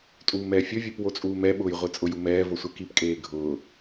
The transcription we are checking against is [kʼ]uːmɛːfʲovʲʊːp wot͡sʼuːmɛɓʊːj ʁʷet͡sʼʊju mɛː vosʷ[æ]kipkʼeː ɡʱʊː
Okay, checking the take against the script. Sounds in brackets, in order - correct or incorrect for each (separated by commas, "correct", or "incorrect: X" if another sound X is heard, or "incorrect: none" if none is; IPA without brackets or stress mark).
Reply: incorrect: tʼ, incorrect: ɛ